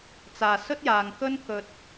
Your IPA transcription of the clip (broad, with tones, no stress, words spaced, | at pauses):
t͡saː˨sɵ˥t̚jaː˨ŋkɵ˥n kɵ˧t̚